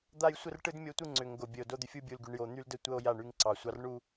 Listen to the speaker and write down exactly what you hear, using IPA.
d̪ a˦ j sʷ ə˦ r ʈ ɯ˦ d mʲ o˦ tʷ ɯ˦ ŋ͡ǀ ʏ˨ ŋ ɡ o˨ bʲ ə˨ o̯ d o˦ d̪ ʏ˦ fʲ u˦ bʲ u˨ l ɡ y˨ ɳ j o˨ n̪ y˦ l d ə˦ tʷ ə˦ o̯ j a˦˨ ɳ y˦ ŋ ǀ ɑ˨ sʷ ɑ˦ r ɳ u˦

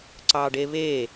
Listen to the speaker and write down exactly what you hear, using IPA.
ǀ ɑ ɖ e β e

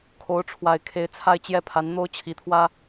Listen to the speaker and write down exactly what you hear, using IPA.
kʰ o˧˥ ʊ̯ ʈ͡ʂʰ w a˨˩ ɪ̯ kʰ e˧˥ ɪ̯ t͡sʰ a˥˧ ɪ̯ t͡ɕ j ɛ˥˩ pʰ a˧˥ n n̪ o˥ ʊ̯ t͡ɕʰ i˧˥ t̪ʰ w ä˥

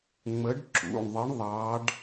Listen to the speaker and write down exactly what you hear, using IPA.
ŋ͡m ə˨˦ ɖ ǁ ṵ˩˧˩ ɳ ðˤ ə˨˦ ɳ ðˤ ɑ˨˦ ɖ

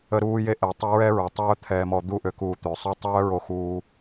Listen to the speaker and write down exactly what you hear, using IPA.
ə˧ ɾ uː˧ j e˧ ʔ ɛ˨ tˤ i˧ ɹ ɛ˦ ɹ œ˨ tˤ œː˧ t̪ʰ ɛː˨ m ɔ˨ d̪ u˧ ʔ ø˨ k uː˨ t̪ ø˨ sˤ o˦ tˤ œː˦ ɹ o˧ x uː˧

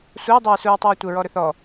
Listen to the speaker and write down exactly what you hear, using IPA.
sʷ ɛ j dˤ ə ɹ s u ɹ tˤ ə ɹ tʷ ə ɹ ɔ ɾ ɵ θ ɔ

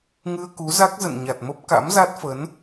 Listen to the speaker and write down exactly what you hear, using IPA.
ŋ ɨ˧ ə̯ k u˨˦ z a˦˥ k̚ z ə̰˧˨ n ɲ a˨˩ t̚ m ə˦˥ p̚ k a̰˧˥ m z a˦˥ t̚ f ə˨˦ n

